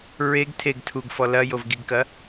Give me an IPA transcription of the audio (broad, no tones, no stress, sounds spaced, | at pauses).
ɹ e ɡ tʰ e ɡ tʰ u ɡ f ɔ l ɐ j o v ɡ i ɡ k ɐ